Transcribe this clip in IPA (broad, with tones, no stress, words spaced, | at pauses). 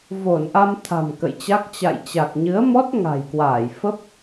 vo˧˩nʔa˧m t̪ʰa̤˨˩mkə̰˧˨jt͡ɕa˦˥k̚ t͡ɕa̰˧˨jt͡ɕa˨˩k̚ɲɨ˨˦ə̯mɔ˦˥t̚ ŋa̤˨˩jkwaː˧˩j fə˦˥p̚